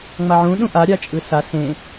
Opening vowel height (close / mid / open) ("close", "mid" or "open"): open